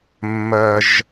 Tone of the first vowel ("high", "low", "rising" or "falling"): high